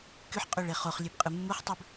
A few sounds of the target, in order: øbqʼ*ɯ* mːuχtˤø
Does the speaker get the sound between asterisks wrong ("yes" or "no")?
no